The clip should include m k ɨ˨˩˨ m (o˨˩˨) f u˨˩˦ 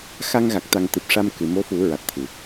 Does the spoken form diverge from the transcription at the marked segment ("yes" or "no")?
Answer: yes